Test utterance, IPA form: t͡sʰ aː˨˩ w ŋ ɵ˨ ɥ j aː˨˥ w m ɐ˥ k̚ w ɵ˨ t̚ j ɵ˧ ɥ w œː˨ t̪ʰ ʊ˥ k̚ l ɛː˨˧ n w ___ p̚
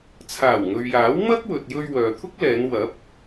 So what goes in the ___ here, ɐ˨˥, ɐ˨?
ɐ˨˥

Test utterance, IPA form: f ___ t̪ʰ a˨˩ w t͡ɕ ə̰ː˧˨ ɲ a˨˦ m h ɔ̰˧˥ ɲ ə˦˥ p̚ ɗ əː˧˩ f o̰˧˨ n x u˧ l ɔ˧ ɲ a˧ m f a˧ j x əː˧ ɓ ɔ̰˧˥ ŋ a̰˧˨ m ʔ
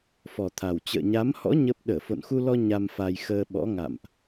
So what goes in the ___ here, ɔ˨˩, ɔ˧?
ɔ˨˩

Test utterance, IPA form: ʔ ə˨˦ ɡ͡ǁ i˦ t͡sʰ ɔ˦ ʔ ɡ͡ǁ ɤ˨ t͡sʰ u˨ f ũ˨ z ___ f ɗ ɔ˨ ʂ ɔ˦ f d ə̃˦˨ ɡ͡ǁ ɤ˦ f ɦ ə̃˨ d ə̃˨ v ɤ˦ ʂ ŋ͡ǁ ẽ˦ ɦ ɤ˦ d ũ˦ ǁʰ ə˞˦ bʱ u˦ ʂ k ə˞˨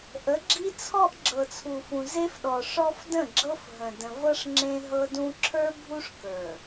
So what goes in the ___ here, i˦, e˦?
e˦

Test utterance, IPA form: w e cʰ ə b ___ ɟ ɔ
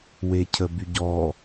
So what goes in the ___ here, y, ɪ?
y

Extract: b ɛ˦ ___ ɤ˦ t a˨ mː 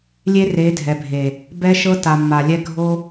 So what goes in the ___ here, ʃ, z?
ʃ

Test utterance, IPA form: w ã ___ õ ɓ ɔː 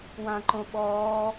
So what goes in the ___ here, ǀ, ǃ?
ǃ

